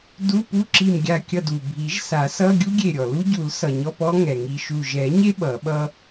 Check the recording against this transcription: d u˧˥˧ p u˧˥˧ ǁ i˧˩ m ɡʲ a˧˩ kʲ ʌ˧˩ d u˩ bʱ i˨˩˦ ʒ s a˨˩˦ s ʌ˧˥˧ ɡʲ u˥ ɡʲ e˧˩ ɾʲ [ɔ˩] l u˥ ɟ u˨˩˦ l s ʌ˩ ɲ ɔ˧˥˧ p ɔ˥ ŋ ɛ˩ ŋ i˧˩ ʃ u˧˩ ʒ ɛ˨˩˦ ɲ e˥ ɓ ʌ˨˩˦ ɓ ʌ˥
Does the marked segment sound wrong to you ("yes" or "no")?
no